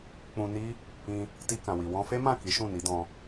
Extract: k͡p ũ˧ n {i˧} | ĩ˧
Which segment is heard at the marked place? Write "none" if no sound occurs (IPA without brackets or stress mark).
i˦